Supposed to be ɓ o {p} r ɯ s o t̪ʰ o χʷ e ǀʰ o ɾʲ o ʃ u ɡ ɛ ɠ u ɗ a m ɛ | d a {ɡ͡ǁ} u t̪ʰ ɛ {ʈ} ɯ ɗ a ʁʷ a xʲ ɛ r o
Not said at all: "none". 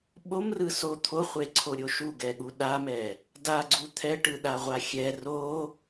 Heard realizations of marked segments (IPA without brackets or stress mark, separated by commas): m, ɡ͡ǀ, ʈ